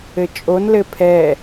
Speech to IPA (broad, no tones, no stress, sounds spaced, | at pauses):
ɘ t͡ʃʼ o n l ɘ pʰ ɛ